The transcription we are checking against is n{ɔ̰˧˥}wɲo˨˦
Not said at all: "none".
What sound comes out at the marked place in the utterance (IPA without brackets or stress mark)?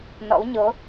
ɔ̰˧˥